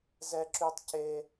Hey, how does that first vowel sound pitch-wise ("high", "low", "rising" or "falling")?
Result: high